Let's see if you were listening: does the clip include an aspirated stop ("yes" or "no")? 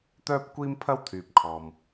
yes